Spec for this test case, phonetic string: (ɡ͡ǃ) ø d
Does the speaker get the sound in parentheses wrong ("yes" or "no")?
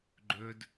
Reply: no